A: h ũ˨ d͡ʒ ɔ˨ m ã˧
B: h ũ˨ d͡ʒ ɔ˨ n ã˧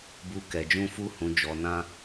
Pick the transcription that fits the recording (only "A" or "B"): B